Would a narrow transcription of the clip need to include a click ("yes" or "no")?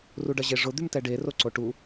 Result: yes